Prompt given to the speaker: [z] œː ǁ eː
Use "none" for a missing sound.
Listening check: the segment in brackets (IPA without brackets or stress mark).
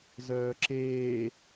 z